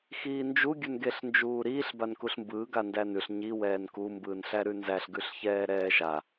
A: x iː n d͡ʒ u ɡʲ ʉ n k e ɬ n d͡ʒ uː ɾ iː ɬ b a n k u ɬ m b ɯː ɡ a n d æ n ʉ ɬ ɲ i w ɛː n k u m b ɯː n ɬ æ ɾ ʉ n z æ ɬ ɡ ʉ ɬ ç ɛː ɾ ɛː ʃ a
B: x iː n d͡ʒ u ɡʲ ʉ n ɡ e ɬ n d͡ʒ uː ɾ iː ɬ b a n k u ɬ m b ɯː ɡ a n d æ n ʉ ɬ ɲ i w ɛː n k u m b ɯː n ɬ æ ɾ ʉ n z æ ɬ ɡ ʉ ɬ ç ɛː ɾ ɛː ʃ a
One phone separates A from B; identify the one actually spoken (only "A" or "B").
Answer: B